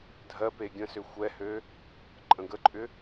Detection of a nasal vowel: present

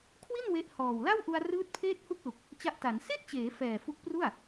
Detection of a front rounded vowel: absent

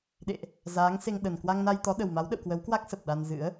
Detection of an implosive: present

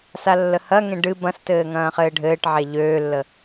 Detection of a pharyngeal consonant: present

